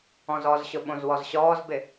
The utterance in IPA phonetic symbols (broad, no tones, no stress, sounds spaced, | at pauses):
ɔ̃ z ɔ z ɕ ʊ ɓ õ z w ɔ z ɕ ɔː z b ɪ